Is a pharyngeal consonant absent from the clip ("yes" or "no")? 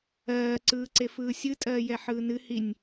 no